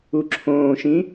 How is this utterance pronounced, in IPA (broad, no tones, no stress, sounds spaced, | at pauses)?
u ǁʰ õː ʃ ĩ